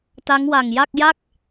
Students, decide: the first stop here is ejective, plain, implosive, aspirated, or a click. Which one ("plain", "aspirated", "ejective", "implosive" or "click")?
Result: plain